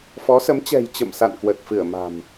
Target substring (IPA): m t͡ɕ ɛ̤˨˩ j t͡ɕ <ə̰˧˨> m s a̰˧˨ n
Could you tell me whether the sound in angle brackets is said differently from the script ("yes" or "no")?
no